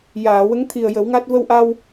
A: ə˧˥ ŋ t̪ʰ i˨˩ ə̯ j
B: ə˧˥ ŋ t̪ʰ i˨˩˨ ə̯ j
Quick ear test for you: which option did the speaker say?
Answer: A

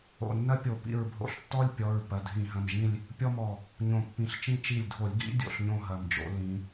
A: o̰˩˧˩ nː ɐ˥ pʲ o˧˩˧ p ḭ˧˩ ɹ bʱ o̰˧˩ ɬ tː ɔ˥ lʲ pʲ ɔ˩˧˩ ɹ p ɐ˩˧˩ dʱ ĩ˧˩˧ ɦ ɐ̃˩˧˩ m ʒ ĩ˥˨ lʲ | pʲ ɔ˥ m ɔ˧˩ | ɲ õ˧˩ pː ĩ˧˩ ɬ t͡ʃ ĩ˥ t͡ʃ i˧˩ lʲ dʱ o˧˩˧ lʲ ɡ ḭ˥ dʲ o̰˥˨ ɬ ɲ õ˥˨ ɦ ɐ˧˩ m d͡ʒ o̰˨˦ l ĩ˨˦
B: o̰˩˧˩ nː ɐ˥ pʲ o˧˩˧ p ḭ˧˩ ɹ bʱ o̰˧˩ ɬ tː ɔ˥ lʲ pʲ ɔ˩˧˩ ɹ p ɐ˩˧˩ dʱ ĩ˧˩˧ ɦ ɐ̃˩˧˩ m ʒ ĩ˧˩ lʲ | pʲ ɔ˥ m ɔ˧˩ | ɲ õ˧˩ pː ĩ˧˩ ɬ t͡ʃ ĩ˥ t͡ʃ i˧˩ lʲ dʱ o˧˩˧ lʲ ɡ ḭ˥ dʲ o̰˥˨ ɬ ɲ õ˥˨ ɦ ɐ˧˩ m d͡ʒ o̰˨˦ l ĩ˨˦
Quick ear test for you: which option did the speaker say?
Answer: A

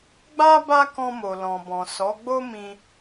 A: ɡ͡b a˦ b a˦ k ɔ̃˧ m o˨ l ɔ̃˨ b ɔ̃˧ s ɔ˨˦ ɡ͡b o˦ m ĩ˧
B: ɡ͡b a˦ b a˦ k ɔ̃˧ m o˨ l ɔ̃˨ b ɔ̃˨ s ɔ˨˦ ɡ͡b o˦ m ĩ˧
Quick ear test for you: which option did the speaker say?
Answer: B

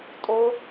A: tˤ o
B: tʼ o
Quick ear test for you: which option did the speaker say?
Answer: B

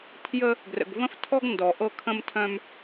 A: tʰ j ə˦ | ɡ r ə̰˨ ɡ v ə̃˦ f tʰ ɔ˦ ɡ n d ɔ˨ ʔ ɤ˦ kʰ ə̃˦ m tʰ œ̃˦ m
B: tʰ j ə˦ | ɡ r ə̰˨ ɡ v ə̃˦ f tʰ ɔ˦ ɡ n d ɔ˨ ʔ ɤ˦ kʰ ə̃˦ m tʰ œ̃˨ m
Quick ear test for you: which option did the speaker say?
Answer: A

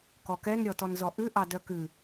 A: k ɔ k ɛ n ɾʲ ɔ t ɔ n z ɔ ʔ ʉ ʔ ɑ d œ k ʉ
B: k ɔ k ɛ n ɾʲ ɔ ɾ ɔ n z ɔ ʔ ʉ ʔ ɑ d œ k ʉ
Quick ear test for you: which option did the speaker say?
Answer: A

